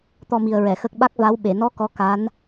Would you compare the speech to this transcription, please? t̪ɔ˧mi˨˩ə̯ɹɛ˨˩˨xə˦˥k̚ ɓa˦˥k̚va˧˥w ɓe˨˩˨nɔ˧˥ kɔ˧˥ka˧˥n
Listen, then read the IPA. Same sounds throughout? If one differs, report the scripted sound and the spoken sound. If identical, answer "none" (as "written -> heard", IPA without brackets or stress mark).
none